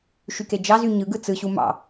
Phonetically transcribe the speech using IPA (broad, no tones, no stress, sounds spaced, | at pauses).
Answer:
ʃ y k e d͡ʒ ɑ z y ɲ ɯ ɡ ɯ t͡s ɯ ɕ u m ɑ̰